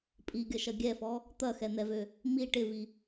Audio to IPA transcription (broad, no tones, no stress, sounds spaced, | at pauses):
pʼ i ɡʲ ɐ ʃ ɐ ɡʲ ɛ f ɔ | t̪ ɐ x ɛ n̪ ɛ v ø | m i ʈ ɪ v i